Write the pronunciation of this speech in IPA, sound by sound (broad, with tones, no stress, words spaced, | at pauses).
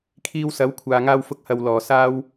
kʰiː˧wsɐ˨˥wkʷʰaː˨ ŋaː˧wfʊ˧k̚hɐ˨w lɔː˨˩saː˥w